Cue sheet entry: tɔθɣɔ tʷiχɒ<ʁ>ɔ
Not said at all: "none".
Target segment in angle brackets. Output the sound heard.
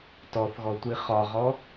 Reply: ʁ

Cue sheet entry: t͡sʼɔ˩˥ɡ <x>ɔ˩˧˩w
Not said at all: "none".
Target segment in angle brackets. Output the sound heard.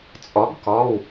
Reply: k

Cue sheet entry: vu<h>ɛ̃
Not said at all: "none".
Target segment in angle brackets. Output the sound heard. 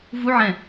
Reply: ʕ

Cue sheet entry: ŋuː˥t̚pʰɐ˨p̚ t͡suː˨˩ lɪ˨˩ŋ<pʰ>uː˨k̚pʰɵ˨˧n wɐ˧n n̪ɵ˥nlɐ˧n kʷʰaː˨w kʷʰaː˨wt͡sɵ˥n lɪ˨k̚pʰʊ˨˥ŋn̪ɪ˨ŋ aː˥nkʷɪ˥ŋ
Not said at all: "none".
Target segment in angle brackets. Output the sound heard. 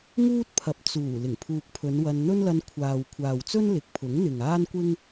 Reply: pʰ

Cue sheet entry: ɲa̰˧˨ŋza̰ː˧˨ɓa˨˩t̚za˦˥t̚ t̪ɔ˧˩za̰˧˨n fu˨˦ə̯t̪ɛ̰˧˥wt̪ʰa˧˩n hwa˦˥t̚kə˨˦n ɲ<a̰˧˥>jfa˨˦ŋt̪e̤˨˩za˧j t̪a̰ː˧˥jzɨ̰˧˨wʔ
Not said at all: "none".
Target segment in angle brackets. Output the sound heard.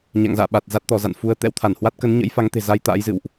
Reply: ə̰˧˥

